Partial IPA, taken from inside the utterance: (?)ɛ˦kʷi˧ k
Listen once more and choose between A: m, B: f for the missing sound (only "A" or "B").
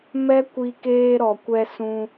A